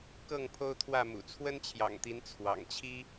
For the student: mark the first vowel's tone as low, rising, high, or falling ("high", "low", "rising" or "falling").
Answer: falling